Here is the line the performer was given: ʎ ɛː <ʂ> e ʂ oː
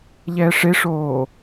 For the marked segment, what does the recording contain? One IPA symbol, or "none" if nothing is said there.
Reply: ʂ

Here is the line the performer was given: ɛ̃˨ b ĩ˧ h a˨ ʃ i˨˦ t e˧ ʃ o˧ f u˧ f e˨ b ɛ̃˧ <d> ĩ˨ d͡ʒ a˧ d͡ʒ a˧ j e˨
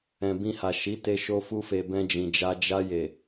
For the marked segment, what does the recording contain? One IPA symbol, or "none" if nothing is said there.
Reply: d͡ʒ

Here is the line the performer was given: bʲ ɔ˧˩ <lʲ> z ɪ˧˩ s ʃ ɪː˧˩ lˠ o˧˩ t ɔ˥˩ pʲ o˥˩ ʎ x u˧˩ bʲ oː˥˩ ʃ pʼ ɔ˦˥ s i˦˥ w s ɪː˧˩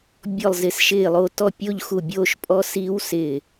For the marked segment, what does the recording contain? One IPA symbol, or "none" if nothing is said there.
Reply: lˠ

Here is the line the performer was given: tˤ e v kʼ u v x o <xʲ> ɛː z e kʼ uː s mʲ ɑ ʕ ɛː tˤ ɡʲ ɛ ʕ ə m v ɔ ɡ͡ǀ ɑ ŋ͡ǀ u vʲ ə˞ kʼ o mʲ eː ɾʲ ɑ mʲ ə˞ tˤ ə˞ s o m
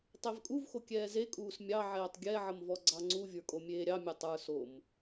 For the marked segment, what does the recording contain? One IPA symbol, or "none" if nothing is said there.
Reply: kʲ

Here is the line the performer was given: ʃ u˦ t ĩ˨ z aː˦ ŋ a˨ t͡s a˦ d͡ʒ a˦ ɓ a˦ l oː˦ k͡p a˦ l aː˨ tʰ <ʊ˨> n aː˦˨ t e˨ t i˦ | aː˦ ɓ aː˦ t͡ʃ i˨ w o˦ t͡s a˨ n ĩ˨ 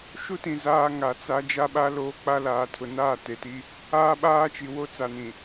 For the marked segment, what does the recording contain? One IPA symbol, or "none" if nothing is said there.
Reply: ʊ˨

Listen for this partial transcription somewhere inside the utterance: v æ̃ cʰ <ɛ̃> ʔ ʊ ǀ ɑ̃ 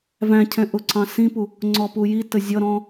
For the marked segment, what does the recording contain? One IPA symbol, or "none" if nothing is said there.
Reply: ɛ̃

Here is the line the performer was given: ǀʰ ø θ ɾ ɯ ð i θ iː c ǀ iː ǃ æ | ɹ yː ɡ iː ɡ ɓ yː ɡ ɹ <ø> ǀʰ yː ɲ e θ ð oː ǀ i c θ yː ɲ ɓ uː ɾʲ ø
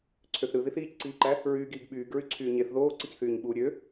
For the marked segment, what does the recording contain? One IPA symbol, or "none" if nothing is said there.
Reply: y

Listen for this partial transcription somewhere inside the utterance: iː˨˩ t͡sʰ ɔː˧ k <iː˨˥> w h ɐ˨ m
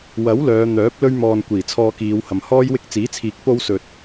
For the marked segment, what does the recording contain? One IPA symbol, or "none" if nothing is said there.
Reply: iː˨˧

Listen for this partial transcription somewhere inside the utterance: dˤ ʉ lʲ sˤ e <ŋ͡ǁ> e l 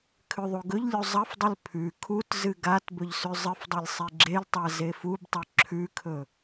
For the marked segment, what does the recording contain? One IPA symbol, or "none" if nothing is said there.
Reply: ɡ͡ǁ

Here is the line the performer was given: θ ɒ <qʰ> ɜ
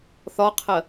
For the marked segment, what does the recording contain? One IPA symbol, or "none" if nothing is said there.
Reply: qʰ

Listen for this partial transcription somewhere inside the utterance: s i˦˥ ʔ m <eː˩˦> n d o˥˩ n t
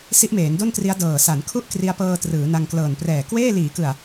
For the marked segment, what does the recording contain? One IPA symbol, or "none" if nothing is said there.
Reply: eː˩˦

